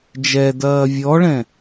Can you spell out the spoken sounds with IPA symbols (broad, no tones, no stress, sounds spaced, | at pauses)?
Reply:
d͡ʒ ɛ d ɐː vʲ ɔ ɭ ɛ̃